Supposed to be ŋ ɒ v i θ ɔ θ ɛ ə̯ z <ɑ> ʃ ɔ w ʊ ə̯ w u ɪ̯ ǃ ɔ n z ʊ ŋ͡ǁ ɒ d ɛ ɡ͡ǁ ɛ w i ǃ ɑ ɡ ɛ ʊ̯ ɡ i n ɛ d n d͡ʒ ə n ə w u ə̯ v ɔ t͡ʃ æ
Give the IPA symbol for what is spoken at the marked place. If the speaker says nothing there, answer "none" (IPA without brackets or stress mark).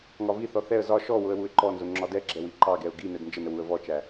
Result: ɒ